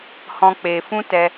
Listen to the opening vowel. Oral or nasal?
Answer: nasal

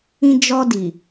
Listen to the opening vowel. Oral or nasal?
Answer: nasal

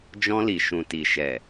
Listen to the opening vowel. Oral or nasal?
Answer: nasal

